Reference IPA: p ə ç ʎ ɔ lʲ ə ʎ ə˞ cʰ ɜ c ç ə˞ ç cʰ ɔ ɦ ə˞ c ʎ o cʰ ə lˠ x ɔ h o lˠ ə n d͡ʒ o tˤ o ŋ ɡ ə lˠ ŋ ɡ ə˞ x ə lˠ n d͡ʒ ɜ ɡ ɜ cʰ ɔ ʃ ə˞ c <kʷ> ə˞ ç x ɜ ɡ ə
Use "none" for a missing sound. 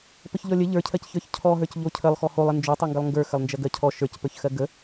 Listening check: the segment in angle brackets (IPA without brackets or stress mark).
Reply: p